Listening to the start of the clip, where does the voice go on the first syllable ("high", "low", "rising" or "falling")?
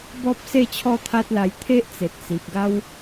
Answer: high